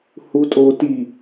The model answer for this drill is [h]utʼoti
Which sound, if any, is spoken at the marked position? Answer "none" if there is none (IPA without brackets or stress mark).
h